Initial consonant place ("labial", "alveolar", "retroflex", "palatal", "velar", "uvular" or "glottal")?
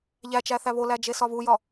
palatal